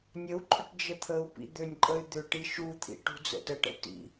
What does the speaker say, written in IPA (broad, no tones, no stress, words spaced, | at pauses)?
nʲəu̯ǃʼʏʈ d͡ʒət̪ʰəu̯pḭ d̪ønʲǃʼəy̯ d̪ʏ ʈiʃut̪ʰḭ ʈṳd͡zə̰təʈə̰ tḭ